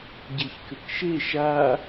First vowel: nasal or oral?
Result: oral